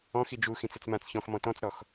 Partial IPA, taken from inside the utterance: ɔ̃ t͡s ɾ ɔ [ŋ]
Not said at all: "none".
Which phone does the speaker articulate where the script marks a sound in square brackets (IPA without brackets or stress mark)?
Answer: x